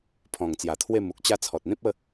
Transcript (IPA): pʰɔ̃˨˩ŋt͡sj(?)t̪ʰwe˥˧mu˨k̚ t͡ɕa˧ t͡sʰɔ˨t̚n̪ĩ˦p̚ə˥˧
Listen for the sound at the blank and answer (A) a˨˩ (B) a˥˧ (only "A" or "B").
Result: A